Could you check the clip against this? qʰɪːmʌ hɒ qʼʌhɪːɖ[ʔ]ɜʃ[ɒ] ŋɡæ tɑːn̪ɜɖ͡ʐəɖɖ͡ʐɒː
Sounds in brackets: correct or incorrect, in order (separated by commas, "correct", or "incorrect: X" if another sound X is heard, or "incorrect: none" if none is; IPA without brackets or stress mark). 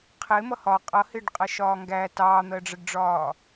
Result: incorrect: qʼ, incorrect: ɒː